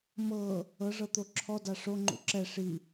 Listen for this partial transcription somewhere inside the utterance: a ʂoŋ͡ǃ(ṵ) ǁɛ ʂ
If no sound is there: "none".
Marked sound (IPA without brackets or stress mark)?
ṵ